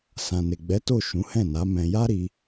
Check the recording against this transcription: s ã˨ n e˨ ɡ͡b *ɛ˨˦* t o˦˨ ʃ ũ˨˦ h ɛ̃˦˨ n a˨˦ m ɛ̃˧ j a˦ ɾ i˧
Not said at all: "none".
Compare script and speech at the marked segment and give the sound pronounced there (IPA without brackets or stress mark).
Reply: ɛ˨˦